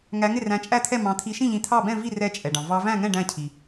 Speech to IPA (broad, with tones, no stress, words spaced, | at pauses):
ŋæ˨˦ŋɪ˥˩ ræ̃˨˦t͡ʃʼæ˥˩t̪ʰɛ˥˩ mɑ̃˨˦ t̪ʰi˨˦ʃĩ˥˩ʎĩ˨˦ t̪ʰɑ˥˩bɛ̃˥˩ vi˥˩ rɛ˥˩t͡ʃʼɛ˩ɖɑ̃˩ vɑ˨˦ væ̃˥˩ŋɛ̃˥˩ ɖæ̃˥˩cʰi˩